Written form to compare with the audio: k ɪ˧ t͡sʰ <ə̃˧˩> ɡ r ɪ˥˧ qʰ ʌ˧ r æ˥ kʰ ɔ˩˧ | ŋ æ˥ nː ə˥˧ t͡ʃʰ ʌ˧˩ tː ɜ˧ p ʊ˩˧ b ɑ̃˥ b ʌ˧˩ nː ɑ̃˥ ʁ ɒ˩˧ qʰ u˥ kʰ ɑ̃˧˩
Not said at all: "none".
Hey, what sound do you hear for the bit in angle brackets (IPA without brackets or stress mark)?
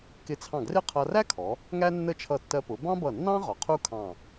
ɑ̃˧˩